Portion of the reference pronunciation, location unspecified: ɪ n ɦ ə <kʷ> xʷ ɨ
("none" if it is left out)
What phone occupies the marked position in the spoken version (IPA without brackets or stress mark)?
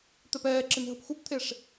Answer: p